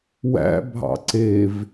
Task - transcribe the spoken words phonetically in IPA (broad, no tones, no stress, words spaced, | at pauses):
wæ̰bʱɑ̰ ǀev